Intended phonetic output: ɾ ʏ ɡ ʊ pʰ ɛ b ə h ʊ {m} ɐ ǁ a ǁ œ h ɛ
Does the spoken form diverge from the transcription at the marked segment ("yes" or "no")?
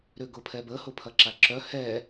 yes